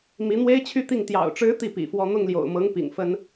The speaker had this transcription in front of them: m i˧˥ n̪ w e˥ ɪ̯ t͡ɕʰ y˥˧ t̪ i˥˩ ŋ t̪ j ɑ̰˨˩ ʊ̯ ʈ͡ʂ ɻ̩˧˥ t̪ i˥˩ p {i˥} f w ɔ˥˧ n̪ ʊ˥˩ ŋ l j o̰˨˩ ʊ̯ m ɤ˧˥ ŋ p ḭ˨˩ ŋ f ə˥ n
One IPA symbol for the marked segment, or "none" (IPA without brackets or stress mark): ḭ˨˩